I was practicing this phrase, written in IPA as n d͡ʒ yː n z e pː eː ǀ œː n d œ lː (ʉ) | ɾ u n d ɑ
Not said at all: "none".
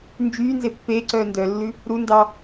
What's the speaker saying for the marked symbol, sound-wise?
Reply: ʉ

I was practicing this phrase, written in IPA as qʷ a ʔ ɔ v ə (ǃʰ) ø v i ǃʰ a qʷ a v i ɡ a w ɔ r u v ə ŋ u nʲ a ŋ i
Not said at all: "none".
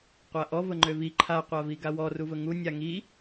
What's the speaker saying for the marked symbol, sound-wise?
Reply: ŋ͡ǃ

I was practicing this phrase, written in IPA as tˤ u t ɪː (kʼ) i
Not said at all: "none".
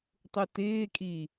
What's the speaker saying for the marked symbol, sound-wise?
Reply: kʼ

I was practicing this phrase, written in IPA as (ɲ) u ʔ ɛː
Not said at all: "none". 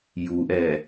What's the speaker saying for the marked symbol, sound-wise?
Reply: j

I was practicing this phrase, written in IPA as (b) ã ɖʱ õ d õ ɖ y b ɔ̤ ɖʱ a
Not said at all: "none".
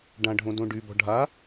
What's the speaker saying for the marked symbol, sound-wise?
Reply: ɖ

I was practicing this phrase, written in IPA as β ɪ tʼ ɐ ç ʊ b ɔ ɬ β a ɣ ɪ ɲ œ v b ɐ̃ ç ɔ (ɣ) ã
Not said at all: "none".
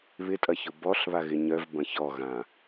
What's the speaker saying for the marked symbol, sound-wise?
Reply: ɣ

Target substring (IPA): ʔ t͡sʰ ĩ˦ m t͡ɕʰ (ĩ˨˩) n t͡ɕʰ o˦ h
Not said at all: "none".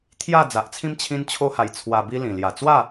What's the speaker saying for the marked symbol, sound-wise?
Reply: ĩ˦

